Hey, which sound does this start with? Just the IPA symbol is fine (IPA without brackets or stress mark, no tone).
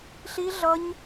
ɬ